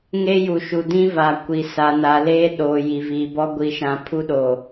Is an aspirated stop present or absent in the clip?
present